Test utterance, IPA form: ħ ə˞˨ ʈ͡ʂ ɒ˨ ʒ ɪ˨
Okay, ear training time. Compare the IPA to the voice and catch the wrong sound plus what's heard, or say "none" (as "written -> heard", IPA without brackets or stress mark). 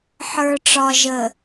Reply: ɪ˨ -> ə˨